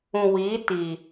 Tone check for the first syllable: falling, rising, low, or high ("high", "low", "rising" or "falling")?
low